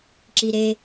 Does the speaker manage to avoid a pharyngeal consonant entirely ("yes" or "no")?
yes